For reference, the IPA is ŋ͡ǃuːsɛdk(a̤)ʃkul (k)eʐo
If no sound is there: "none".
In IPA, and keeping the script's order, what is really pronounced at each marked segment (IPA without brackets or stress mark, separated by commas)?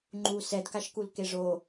a, k